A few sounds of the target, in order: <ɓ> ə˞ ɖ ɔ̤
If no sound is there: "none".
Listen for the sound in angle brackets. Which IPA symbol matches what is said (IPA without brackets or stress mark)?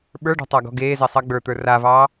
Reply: ɓ